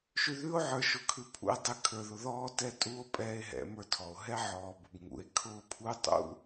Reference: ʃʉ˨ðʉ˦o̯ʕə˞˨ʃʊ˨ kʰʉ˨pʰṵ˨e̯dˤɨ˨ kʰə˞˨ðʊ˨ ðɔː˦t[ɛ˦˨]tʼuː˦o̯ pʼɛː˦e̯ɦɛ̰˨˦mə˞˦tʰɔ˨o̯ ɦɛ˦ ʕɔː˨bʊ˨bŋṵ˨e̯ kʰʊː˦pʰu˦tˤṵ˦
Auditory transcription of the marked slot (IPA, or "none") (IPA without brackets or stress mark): ɛ˦˨